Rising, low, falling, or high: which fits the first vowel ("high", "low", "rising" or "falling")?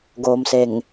low